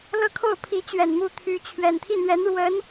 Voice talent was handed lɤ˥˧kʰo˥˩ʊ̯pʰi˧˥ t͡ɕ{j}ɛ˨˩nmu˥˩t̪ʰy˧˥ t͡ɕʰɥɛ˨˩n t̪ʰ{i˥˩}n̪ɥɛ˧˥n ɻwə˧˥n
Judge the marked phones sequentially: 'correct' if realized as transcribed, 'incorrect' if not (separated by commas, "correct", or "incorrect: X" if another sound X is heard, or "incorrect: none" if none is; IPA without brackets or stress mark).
incorrect: ɥ, correct